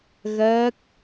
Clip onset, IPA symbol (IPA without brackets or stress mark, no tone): ɣ